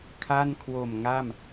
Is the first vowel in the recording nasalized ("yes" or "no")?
no